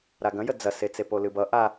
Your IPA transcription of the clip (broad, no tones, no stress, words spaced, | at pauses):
ɾaɡɐ̃jə d͡zɐset͡se polɨbʌ ʔa